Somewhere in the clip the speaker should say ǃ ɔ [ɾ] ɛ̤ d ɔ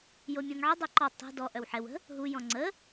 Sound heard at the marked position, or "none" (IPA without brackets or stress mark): tˤ